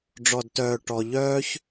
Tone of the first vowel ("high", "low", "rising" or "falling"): low